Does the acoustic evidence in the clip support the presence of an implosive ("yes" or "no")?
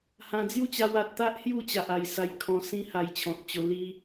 no